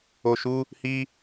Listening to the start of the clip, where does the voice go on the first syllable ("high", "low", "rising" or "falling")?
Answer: low